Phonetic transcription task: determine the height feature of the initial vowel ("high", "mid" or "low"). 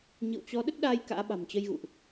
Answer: high